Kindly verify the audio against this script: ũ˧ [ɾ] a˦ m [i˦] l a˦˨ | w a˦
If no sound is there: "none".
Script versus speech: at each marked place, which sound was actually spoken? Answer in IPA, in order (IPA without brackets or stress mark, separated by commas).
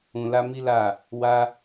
l, i˦